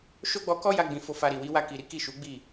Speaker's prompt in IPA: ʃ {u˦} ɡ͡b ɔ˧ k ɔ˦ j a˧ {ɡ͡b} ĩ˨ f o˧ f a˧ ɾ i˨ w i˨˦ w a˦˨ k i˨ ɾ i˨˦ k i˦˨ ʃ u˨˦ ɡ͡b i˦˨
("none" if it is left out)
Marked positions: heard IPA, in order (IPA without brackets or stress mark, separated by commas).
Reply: o˦, ɡ͡b